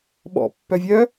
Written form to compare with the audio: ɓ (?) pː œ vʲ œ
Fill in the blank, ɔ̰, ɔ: ɔ̰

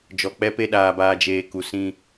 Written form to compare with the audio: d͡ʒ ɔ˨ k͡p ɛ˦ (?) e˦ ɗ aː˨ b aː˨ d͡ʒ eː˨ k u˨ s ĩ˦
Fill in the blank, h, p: p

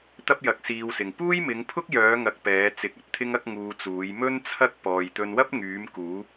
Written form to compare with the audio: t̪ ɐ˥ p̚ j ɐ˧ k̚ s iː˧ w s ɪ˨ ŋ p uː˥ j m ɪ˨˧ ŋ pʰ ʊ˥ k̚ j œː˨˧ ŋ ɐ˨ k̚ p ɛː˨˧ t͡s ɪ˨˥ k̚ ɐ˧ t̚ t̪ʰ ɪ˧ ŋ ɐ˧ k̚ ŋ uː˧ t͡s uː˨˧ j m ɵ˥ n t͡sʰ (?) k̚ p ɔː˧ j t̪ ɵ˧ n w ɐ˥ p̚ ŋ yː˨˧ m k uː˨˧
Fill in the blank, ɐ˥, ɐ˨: ɐ˥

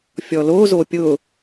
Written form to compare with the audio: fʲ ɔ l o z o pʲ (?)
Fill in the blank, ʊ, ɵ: ʊ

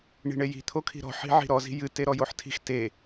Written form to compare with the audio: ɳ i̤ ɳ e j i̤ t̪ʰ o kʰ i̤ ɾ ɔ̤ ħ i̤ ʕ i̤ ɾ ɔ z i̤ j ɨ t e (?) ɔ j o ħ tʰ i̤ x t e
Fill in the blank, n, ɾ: ɾ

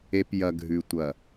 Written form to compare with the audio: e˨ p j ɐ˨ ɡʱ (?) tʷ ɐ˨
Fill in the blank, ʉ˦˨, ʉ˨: ʉ˨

